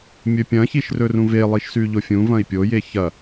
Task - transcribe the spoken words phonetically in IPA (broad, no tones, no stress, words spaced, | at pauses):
mʲɵpʲɐ̃çiʃ rɵrũvelˠiʃ sʉʎofʲũvɐ̃i̯ pʲoje çɐ